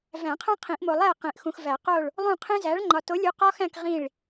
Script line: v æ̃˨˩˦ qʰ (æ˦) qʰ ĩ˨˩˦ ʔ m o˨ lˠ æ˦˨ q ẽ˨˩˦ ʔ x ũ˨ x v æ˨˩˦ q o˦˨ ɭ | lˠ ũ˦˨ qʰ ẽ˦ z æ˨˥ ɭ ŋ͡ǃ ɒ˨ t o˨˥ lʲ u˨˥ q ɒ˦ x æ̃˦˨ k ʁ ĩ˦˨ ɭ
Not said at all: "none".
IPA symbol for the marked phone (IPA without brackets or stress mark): æ̃˦